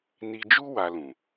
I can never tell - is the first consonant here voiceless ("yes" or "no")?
no